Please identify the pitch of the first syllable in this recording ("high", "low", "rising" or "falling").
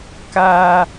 high